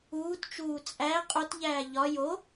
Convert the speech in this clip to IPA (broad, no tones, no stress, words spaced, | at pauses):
uːtt͡ʃuː t͡sʼæ qʼotʎæː ʎɒ jo